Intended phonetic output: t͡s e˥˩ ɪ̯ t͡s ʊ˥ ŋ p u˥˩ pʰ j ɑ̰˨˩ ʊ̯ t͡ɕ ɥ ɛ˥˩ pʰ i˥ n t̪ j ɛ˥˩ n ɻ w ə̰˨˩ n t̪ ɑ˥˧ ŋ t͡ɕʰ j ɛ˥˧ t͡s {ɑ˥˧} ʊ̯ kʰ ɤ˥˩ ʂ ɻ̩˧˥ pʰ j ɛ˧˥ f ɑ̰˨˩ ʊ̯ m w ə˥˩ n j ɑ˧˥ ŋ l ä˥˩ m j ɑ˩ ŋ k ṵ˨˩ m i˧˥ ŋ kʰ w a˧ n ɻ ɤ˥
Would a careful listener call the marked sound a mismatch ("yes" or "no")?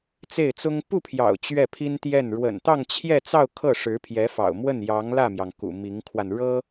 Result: no